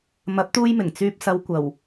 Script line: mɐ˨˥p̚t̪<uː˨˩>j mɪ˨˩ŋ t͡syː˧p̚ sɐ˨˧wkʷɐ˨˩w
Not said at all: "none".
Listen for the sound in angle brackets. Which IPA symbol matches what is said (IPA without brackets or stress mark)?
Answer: uː˧